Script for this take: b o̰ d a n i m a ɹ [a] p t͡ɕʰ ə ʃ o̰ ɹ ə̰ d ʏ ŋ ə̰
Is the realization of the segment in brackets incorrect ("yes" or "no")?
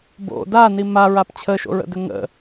no